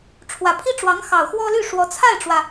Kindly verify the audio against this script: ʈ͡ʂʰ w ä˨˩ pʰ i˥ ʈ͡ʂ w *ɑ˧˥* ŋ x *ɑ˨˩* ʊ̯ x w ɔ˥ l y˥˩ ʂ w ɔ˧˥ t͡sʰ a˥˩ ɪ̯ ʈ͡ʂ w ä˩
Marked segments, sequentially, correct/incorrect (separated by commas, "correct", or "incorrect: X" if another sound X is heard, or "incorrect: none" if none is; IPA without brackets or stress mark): correct, correct